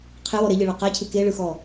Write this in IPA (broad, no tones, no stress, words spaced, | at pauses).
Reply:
qʰɪwɔ ɾeʎɨɭɒ qacʰɨ keɭɯxɔ